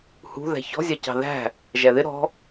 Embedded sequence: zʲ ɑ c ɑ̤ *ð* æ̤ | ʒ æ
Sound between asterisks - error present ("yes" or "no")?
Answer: no